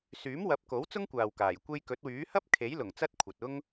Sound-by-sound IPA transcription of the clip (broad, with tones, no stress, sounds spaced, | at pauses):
s yː˨˥ m w ɐ˨˥ p̚ k o˨˥ w t͡s ʊ˥ ŋ kʷ aː˨ w k aː˨˩ j kʷ e˧ j k ɵ˨˥ t̚ w yː˨˥ h ɐ˥ p̚ kʰ e˨˥ j l ʊ˨˩ ŋ t͡s ɐ˥ t̚ kʷʰ ɐ˨ t̚ ʊ˥ ŋ